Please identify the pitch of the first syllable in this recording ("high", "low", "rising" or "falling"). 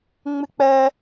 high